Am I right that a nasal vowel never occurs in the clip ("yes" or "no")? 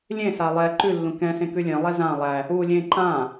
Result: no